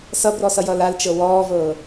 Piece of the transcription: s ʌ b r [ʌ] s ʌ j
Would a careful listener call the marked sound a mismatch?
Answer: yes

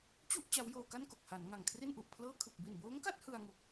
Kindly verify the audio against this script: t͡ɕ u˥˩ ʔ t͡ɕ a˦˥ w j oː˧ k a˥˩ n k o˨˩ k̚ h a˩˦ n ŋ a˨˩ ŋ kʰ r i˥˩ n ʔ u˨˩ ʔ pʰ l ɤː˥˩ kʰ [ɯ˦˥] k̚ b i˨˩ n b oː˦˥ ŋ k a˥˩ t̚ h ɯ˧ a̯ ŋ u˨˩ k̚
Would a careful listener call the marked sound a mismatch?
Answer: yes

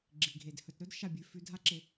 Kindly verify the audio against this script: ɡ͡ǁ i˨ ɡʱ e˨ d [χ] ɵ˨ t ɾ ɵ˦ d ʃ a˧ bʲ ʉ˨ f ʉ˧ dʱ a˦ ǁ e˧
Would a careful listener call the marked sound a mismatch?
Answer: yes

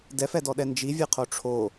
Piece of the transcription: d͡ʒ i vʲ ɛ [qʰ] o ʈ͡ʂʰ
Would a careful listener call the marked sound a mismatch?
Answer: no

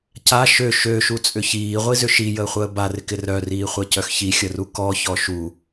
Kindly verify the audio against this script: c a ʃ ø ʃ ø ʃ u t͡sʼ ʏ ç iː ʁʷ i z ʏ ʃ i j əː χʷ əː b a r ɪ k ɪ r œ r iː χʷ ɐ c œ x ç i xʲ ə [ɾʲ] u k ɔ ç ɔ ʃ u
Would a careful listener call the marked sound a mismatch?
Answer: yes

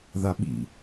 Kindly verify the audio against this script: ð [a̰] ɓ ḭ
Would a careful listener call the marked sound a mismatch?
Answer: yes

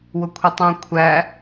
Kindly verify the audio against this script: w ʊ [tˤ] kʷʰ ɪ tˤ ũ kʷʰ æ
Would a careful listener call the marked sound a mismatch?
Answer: yes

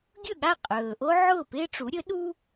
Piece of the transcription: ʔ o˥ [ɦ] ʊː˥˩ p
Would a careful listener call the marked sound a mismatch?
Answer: yes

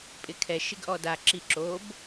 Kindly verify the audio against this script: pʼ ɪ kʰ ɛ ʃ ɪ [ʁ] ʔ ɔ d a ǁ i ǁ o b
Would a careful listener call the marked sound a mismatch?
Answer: yes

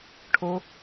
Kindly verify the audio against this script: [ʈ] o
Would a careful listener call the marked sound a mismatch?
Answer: yes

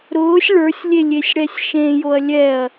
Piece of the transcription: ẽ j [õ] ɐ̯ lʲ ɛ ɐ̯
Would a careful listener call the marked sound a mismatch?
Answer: yes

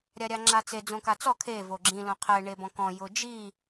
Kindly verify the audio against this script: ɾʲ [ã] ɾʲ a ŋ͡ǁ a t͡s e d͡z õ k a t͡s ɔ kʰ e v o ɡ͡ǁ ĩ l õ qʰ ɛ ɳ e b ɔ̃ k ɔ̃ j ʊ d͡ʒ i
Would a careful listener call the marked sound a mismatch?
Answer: yes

